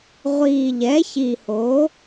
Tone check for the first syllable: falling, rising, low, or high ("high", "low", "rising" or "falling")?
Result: low